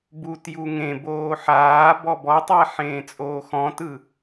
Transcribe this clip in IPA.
b u t j u ŋ ẽ b oː ħ aː b ɔ b ɔ tˤ a ħ ẽː t͡sʼ oː x ɔ̃ t ɯ

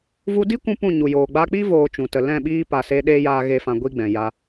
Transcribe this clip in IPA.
v u˧ d i˦ kʷ ũ˧ p ũ˦˨ ɲ u˨ j oː˨ ɡ͡b a˧ k͡p i˦ v oː˦ t͡ʃ ũ˨ t ə˧ l ɛ̃˦˨ ɓ iː˦ p a˨ s e˦ ɗ eː˧ j aː˨ ɣ e˦ f ã˧ ɡʷ i˦ ɡ͡b ɛ̃˨ j a˧

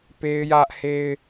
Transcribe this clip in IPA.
p e˦ ɪ̯ j ä˦ ʔ h e˦ ɪ̯

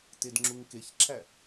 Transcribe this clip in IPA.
t e d ŋ͡ǁ u ŋ k e ç ǁʰ æ

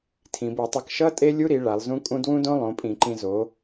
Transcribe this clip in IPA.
tʰ ĩ˩˧ b ɯ˧˩˧ tˤ ʌ˧ k ʃ ʌ˦˥ tʼ e˦˥ lʲ u˦˥ ɾ i˩˧ ɭ a˩˧ lˠ z ũ˦˥ kʼ ũ˦˥ d w ũ˦˥ d õ˦˥ lˠ õ˩˧ pʼ ĩ˧˩˧ ǃ ĩ˧ z o˩˧

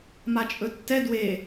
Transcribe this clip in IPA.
m a t͡ʃʼ ɵ tː ɛ d w e

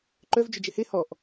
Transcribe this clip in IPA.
ǃ œ v d͡ʒ ʏ d͡ʒ ɪ h e h ɔ ʔ

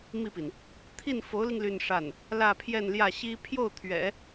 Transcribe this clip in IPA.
m i˥˩ p i˩ n | t̪ʰ i˥˩ n f o˧˥ ʊ̯ l i˧ ŋ l y˥˧ n ʂ a˥˩ n | l ä˥˧ pʰ j ɛ˥˧ n l j ä˥˩ ɕ i˥ pʰ j o˥˩ ʊ̯ t̪ʰ ɥ ɛ̰˨˩˦

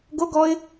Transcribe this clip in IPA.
ɡ o ɡ ɔ ɪ̯

